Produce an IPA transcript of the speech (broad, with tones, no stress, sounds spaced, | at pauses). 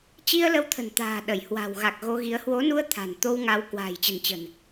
t͡ɕ i˧ ə̯ l ə˧ w t̪ʰ ə̤˨˩ n t̪ a̤ː˨˩ ɗ ə˧˩ j h w a̤˨˩ w ɣ a˨˩ k̚ ɣ o˧ ɣ i˨˦ ə̯ h w o˨˦ n u˧ ə̯ t̪ʰ a̤˨˩ n t̪ o˧ w ŋ a˨˦ w k w a̤ː˨˩ j t͡ɕ ə̤˨˩ n t͡ɕ ə̤˨˩ n